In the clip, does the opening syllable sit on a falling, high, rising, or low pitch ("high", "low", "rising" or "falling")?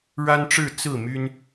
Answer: high